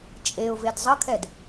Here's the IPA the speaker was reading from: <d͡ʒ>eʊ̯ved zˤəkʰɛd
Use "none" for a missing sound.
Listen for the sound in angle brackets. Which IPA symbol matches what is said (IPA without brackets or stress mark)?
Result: t͡ʃʼ